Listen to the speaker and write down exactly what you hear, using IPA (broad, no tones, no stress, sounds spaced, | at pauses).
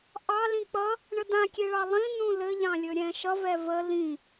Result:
ʔ ɑ l ĩ k͡p ʌ | ɳ ə d ã kʲ e ɭ ɑ lˠ ĩ n ũ l ɘ ʎ ɑ̃ lʲ ɵ ɾʲ ɛ̃ ʃ ʌ v ɛ v ə l ĩ